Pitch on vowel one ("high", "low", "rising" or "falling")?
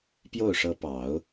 falling